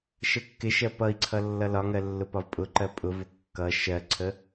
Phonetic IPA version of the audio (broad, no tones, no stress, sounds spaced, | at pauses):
ʃ ə kː ɪ ʃ ɜ p ʌ i̯ ǀʰ ʌ lː ʌ l ɒ ŋ ɜ lː ʊ p ɒ v pʼ ʊ ǃ ɜ pʼ ʊ v ʊ kː ʌ ʃ ɜ ǀʰ ə